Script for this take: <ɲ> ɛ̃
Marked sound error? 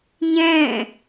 no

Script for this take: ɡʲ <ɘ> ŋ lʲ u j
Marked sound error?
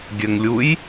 no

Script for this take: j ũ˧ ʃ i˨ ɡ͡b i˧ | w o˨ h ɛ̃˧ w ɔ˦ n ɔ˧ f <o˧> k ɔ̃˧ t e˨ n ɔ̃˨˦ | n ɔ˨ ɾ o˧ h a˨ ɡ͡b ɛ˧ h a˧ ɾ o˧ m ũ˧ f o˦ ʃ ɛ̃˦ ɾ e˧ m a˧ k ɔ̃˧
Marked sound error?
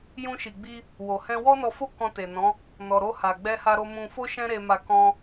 yes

